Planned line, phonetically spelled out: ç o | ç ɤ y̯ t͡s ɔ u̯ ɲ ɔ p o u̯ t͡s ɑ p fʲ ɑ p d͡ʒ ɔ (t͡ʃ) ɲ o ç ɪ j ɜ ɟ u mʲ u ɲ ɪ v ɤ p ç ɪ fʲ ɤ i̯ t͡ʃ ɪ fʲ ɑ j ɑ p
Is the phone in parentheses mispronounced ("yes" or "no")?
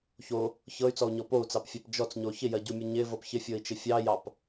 yes